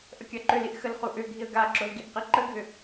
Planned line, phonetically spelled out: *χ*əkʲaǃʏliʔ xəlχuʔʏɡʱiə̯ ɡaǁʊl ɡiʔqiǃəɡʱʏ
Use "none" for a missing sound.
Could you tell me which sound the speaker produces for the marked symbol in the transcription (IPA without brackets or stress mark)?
ʔ